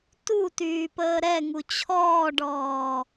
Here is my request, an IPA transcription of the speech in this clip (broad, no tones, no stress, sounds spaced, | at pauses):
t u t yː p əː ɾ ɛ ŋ u t͡ɕʰ ɔː ɖ ɔː